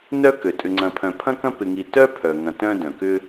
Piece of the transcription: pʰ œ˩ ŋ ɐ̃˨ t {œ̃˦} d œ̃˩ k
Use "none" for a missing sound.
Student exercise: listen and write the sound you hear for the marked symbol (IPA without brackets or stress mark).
œ̃˦